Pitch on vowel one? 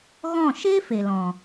falling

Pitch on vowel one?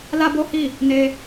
high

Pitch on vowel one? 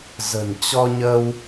low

